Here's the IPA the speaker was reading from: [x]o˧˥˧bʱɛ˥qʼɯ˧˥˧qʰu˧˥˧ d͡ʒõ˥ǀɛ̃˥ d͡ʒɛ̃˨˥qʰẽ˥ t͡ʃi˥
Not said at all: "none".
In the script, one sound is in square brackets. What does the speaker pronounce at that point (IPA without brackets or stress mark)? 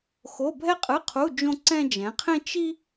x